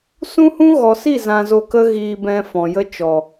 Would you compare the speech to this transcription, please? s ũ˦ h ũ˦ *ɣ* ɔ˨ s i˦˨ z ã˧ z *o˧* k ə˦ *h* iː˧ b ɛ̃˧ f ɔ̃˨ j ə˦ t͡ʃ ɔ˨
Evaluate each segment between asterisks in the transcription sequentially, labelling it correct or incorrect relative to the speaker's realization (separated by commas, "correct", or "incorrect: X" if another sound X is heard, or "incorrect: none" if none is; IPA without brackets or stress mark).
correct, correct, incorrect: ɣ